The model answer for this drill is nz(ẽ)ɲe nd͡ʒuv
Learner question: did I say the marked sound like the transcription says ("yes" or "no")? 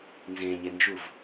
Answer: yes